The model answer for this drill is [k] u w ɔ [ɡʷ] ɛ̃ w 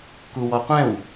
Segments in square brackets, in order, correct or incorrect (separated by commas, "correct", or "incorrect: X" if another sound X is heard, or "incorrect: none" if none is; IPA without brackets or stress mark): correct, incorrect: qʷ